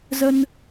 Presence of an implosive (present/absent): absent